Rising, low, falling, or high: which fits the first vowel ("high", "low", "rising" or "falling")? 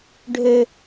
high